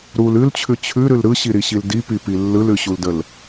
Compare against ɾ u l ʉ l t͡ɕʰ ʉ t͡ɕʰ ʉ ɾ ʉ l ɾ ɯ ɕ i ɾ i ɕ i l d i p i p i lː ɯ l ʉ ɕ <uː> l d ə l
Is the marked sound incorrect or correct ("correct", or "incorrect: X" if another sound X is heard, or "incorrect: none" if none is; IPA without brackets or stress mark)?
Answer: incorrect: u